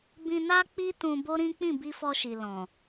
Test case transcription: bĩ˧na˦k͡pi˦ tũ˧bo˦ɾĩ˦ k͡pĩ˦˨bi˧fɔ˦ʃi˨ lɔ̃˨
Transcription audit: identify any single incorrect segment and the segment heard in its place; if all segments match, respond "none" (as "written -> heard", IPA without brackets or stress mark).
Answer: ɔ˦ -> ɔ˧